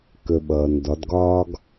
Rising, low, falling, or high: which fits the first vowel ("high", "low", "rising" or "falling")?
low